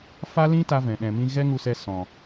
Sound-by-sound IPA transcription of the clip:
fa˦lĩ˦ ta˧vɛ̃˨ɗɛ̃˨mĩ˧ ɣɛ˦ŋu˧sɛ˧ sɔ̃˨

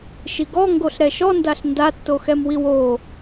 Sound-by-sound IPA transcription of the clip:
ʃiɡɔ ŋɡoɬɾɛʃɔndaɬ ndatːoxɛmwiw o

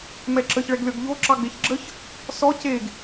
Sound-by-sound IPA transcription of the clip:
mɛǁəç ɭɛɡlʲɔɡʎo ǁɑɡ͡beçɡ͡ǁəç | sɔ ceɡ

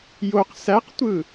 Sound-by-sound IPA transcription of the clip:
joq sæqtʷɯ

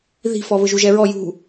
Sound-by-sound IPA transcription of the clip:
ði̤fɔβʊ ʒuʒɛɹɔ jṳ

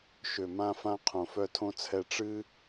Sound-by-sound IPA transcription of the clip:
ʃø˩mã˨fã˨ qʰõ˩fœ˨tʰõ˨t͡sʰɛ˨ ʈ͡ʂɨ˦

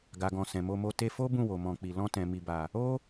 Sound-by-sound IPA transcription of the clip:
ɡa˨ɡɔ̃˨ sɛ̃˨mo˧mo˧ te˧fo˦ bũ˦˨wo˨mɔ̃˨k͡pi˨ lɔ̃˧tɛ̃˨ mi˨ba˨ | o˦

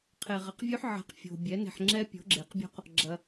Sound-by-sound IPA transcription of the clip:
qʰe˨ʁɐ˨qvʲʉ˦˥ħ ʕɛ̤˨q fʲo̤˨ bʲɛ˩˥ne̤˨ħŋ͡ǁɛ˦˥ pʲo̤˩˥ɡ͡ǁe˩˥qbʲo̤˦˥q | ɡ͡ǁɐ˨

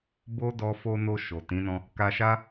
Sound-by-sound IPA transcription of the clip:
bo˦dɔ˧fo˧no˧ ʃo˨tĩ˨˦nɔ̃˧ | ka˧ʃa˦

